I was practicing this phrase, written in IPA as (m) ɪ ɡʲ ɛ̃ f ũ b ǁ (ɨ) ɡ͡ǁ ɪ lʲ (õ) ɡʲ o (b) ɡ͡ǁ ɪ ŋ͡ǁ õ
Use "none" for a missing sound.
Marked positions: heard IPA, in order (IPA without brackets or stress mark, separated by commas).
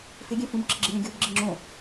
f, ɪ, õ, b